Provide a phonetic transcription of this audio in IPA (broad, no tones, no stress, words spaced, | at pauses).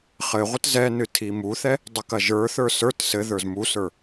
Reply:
χɘʁʷət zɛnɨ tʰimuθɛ | dˤɘkɐʒə˞θə˞ sə˞t sɘðə˞z musə˞